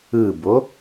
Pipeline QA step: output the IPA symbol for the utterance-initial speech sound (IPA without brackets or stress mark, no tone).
ɯ